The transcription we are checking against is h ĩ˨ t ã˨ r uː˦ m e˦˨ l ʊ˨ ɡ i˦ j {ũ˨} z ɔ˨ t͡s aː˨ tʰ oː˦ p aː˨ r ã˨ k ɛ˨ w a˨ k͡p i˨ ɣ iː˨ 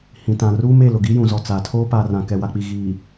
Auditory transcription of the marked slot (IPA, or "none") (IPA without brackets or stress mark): ũ˨